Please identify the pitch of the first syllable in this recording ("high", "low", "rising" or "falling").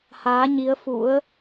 rising